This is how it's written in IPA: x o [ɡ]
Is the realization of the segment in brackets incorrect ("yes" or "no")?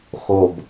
yes